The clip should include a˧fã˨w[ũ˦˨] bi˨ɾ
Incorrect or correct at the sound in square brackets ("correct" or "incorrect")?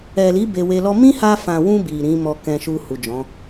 incorrect